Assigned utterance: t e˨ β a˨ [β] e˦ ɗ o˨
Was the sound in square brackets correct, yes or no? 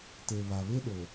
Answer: yes